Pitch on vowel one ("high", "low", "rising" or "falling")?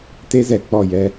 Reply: high